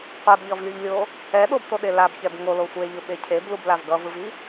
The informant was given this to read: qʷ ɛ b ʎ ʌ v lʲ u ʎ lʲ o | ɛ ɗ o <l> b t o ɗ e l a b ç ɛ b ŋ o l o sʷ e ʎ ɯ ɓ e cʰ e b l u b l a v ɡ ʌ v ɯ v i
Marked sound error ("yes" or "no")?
yes